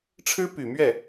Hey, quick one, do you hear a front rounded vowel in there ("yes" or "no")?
yes